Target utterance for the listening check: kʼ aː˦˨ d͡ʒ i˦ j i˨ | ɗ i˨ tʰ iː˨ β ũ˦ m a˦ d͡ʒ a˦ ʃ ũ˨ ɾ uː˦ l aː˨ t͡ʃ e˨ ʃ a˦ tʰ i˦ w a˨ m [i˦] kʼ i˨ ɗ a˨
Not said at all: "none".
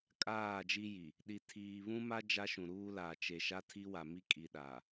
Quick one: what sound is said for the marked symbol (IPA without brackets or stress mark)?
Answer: i˦